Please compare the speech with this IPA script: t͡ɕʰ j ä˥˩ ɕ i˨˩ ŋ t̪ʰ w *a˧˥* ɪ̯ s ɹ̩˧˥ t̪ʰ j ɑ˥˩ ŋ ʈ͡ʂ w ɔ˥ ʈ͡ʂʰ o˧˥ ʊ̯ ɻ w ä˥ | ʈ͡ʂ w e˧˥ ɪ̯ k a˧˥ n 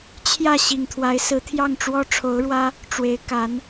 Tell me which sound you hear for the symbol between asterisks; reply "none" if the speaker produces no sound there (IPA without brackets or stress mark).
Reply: a˧˥